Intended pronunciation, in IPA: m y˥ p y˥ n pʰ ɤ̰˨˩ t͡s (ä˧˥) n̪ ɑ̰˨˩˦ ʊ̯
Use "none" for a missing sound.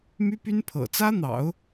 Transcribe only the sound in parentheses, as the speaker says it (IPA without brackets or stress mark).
ä˥